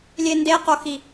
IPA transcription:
lʲ e n d e q o x i

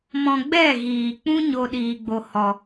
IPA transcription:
m ɔ̃˧ ɡ͡b ɛ˦˨ ɣ iː˨ k͡p ũ˦ ɲ o˦ ɗ iː˧ ɡ͡b o˧ h ɔ˨

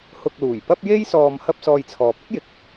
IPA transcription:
h ʊ˧ k̚ l uː˨˩ j p ɐ˥ p̚ j e˥ j s ɔː˧ m h ɐ˥ p̚ s ɔː˧ j t͡sʰ ɔː˨ p̚ ɪ˥ k̚ j ɪ˨˥ k̚

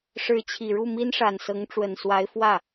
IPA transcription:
ʂ ɻ̩˧˥ t͡ɕʰ i˨˩ ɻ u˥˩ m i˥ n ʂ a˨˩ n s ɤ˧˥ ŋ ʈ͡ʂ w ə˨˩ n s w a˧˥ ɪ̯ f w ä˥˩

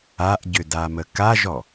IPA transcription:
a ʔ ɟ ʏ d a m ə k a ʒ ɔ

